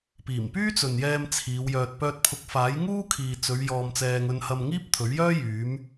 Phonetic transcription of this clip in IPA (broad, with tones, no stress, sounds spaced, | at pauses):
p iː˨˩ m p yː˥ t͡s ɵ˨ n j ɛː˧ m t͡sʰ iː˨˧ w j œː˧ t̚ p œː˧ t̚ pʰ ʊ˨˥ k̚ f aː˨˥ j ŋ uː˥ kʰ iː˨ t͡s ɵ˨˧ ɥ j ɔː˧ m t͡s ɛː˧ ŋ ɵ˧ n h ɐ˧ m ŋ iː˥ p̚ t̪ʰ ɵ˨˥ ɥ j œː˥ j yː˨˧ m